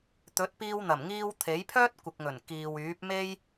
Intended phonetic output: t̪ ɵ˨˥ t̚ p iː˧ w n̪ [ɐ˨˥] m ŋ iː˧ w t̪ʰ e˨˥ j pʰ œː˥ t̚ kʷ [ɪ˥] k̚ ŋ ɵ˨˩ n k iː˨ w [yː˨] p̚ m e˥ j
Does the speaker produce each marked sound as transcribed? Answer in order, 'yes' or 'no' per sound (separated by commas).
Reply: no, no, no